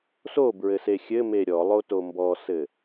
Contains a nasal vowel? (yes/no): no